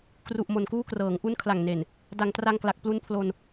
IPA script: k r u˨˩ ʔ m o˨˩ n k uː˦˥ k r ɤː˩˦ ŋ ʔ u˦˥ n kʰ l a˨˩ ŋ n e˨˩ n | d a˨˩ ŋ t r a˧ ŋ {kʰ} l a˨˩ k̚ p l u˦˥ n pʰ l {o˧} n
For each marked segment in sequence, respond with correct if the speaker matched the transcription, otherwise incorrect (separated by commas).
incorrect, correct